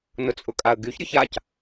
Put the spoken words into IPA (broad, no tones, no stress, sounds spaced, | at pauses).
n ʊ t͡sʼ ʊ kʼ a ə̯ ɡ y ç ɾʲ ʊ ç a c